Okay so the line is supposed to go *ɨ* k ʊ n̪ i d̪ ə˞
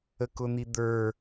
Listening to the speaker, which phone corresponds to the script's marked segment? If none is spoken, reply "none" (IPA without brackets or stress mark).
ə